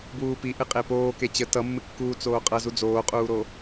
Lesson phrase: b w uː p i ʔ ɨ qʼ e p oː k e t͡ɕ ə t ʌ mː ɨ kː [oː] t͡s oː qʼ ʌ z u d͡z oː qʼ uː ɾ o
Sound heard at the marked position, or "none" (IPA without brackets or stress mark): uː